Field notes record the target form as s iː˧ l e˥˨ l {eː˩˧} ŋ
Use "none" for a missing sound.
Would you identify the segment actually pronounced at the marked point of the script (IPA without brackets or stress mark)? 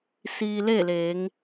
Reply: eː˩˧